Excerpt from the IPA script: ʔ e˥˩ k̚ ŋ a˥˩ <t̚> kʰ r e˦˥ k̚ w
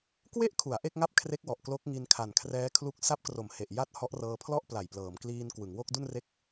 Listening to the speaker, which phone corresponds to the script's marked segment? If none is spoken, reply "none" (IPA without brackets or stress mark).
p̚